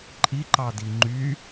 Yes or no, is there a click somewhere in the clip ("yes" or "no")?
yes